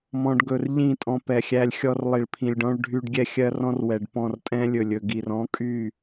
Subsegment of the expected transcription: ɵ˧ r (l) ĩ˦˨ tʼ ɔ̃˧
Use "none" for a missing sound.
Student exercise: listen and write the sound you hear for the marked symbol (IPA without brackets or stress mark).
ʎ